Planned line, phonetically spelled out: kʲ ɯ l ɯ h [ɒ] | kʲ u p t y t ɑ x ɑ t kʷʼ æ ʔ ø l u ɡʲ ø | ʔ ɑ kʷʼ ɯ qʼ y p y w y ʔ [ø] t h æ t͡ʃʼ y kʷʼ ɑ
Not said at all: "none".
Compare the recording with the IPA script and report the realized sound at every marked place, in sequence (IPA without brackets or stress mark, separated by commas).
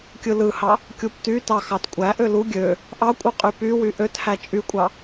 ɑ, ø